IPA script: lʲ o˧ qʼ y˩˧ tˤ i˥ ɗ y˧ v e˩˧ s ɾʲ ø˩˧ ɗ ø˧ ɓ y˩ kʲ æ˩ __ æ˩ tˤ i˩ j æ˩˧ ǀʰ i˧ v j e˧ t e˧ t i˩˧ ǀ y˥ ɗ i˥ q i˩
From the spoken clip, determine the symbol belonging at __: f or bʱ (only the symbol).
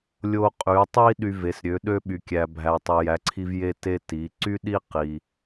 bʱ